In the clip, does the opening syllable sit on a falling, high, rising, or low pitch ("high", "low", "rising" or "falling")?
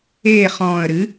falling